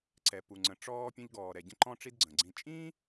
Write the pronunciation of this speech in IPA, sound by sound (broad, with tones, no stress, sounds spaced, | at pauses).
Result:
ǀ ɛ˩ p u˩ ŋ͡ǀ ə̃˩ ʈ͡ʂ ɔː˧ pʲ ə̃˧ ʎ ɡ ɔː˩ ɾ ɛ˩ ɟ ə̃˧ ǃ ɔ̃˧ ʈ͡ʂ i˧ d ɡ͡ǀ ə̃˩ ɡ͡ǀ ĩ˧ t͡ʃʼ ĩː˥